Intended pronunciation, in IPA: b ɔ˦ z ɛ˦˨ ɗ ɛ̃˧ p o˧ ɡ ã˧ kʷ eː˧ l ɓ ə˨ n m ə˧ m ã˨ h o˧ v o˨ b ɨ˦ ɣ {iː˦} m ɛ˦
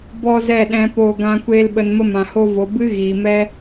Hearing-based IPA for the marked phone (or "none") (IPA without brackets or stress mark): iː˨